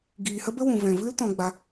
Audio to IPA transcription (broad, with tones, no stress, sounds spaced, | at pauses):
ɡ iː˨ h ə˦ b ə˦ w ũ˨ v ɛ̃˨ v ɨ˦ l t ɔ̃˧ ɡ͡b a˧